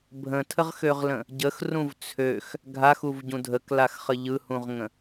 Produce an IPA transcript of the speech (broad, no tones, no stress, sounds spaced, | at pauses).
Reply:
bʱ ə̃ tʰ ə ʁ x ø ʁ l ə̃ | ɟ ə x r ũ v t͡sʰ ø x | ɡʱ a x u v ɟ ũ dʱ ə k l a x χ ə ʎ ɯ h ũ ʁ ŋ ə̃